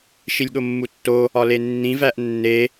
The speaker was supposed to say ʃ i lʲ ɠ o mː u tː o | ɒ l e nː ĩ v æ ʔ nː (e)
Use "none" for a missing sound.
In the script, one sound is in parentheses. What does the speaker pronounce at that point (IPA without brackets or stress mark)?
e